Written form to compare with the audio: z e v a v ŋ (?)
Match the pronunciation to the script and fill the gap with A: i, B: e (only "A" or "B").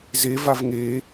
B